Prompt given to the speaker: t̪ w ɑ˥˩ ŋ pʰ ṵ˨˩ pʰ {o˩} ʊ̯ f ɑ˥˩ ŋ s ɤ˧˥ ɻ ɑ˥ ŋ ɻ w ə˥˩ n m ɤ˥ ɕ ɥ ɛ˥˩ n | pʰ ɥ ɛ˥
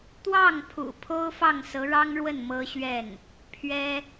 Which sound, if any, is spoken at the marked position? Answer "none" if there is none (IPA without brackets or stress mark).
o˥